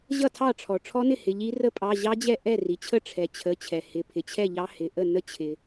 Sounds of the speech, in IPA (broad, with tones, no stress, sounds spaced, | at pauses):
ʑ ʌ˥˩ tʰ ɑ˥˩ ʈ͡ʂʰ ɔ˩ ʈ͡ʂʰ ɔ˦˥ n ɪ˥˩ h ɪ˩˧˩ ʎ i˦˥ r ə˦˥ pʼ ɑ˩˧˩ ʑ ɑ˦˥ d͡ʑ ɛ˥˩ ʔ ɛ˥˩ r i˩ t͡ɕʰ ə˥˩ ʈ͡ʂʰ ɛ˩ t͡ɕʰ ə˩˧˩ t͡ɕʰ ɛ˩ h ɪ˩˧˩ pʰ ɪ˩ t͡ɕʰ ɛ˥˩ ʎ ɑ˦˥ h ɪ˩˧˩ ʔ ə˥˩ n ə˦˥ t͡ɕʰ ɪ˩